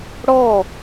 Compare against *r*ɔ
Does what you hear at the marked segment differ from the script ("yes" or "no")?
yes